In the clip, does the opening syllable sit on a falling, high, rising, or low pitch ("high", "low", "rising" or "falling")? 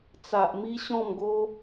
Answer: low